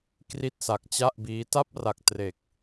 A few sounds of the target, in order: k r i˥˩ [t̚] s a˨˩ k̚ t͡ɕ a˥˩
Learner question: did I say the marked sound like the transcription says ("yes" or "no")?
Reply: yes